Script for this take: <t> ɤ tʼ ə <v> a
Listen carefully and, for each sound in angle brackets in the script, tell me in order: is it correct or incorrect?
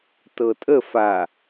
correct, incorrect

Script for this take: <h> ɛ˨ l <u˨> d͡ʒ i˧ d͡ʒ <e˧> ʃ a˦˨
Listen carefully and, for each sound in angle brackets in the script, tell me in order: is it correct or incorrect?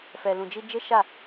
incorrect, incorrect, incorrect

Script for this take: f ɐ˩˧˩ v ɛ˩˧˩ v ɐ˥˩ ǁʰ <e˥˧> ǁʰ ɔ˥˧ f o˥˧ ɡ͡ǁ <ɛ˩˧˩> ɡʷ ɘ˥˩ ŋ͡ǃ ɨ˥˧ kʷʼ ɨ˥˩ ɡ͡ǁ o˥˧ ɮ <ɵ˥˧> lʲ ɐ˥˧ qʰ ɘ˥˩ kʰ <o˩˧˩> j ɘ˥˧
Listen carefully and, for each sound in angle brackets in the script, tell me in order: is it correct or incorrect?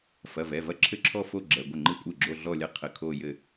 incorrect, correct, incorrect, incorrect

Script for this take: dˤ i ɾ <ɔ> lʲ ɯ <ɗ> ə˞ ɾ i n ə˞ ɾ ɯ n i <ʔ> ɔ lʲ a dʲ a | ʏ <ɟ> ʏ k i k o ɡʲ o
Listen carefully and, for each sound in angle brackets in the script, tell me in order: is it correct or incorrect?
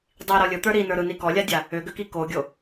correct, incorrect, incorrect, incorrect

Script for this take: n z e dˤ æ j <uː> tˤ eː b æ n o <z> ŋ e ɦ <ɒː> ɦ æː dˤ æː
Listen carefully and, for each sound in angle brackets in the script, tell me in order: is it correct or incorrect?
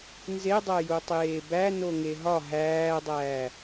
incorrect, incorrect, incorrect

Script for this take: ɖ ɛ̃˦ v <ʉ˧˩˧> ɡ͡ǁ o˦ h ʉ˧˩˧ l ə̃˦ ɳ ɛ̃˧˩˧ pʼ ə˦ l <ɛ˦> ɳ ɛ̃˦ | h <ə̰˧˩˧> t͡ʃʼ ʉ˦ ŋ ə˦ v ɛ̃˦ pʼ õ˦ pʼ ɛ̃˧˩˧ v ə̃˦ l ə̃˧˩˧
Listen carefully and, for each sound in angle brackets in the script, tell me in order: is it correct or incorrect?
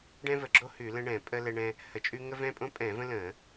incorrect, correct, incorrect

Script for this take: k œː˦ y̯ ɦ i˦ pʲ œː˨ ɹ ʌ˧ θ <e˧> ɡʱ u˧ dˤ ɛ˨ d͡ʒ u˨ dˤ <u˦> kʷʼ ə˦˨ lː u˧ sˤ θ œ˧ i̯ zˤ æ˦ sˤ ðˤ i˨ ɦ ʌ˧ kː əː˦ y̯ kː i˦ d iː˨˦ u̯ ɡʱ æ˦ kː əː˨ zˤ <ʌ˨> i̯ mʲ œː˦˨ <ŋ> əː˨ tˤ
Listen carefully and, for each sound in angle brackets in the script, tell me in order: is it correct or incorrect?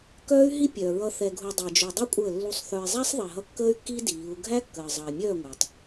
incorrect, correct, correct, incorrect

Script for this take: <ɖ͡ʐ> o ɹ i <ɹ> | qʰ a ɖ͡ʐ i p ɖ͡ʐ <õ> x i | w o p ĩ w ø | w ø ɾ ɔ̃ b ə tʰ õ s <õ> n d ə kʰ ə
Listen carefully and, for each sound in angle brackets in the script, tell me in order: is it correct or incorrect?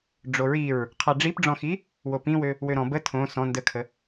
correct, correct, incorrect, incorrect

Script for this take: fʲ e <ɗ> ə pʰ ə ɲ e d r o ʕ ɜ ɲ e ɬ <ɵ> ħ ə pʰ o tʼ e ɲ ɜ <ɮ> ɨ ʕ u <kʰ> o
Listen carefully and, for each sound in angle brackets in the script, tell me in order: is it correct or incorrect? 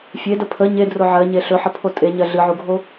incorrect, correct, correct, incorrect

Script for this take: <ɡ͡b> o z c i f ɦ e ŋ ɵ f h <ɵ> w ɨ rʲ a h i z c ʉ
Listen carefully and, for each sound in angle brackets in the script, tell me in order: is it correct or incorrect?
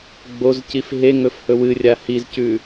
correct, correct

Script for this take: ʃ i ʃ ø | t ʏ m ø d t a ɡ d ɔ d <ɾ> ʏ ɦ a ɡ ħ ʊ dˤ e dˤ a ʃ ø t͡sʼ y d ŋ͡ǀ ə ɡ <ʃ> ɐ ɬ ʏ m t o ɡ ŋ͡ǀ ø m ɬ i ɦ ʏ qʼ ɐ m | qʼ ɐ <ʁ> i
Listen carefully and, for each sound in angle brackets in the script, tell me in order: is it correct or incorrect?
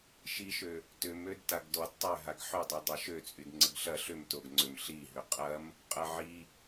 incorrect, incorrect, incorrect

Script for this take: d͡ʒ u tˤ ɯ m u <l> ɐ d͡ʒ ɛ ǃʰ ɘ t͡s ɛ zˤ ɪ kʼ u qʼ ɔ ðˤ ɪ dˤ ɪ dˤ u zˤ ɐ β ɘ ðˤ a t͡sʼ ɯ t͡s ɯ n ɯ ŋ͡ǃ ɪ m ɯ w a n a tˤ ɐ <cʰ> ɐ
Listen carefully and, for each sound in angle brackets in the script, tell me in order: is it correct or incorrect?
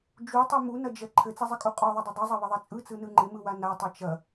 incorrect, incorrect

